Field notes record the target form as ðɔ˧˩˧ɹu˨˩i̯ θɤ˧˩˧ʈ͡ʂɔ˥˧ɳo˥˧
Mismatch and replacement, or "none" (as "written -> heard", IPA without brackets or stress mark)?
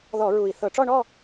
o˥˧ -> ɔ˥˧